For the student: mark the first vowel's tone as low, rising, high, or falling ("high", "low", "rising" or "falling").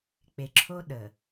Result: low